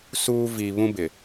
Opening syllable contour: high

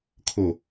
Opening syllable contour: low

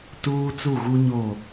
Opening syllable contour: high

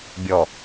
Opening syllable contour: low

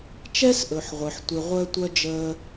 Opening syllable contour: high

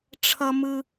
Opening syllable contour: high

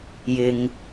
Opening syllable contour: low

